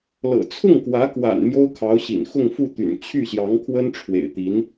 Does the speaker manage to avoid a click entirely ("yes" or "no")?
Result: yes